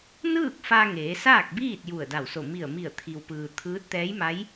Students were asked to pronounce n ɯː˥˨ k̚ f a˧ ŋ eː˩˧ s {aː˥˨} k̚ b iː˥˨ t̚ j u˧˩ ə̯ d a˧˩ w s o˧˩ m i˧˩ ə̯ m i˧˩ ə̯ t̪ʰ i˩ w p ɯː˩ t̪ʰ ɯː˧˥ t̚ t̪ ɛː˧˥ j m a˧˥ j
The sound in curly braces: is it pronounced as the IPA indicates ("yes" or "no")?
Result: yes